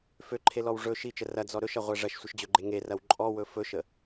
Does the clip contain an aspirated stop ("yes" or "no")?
yes